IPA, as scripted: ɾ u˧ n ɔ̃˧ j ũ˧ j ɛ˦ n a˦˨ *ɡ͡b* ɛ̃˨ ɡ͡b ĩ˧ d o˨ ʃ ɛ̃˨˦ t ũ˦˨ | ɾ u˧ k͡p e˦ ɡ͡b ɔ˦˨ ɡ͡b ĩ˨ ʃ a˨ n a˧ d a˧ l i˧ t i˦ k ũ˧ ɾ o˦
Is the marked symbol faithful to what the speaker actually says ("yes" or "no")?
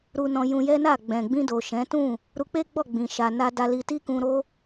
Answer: yes